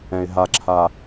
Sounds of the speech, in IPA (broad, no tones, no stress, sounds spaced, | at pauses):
ɛ̃ ɪ̯ ɦ a ǁʰ a